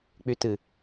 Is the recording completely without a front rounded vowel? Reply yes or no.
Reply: no